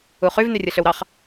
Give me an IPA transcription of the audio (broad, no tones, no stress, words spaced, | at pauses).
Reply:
uχyv nyrʲɯɬøwɾɑχ